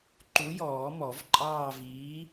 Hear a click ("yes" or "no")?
yes